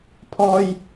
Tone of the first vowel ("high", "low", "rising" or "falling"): high